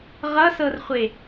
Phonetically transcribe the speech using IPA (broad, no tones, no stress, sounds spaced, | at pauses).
ʁ ʌ s ɤ r χʷ e